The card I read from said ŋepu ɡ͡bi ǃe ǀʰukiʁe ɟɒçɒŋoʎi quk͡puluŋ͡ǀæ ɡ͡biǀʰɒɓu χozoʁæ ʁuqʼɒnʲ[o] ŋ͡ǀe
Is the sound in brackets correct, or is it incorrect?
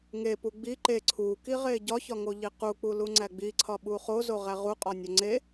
correct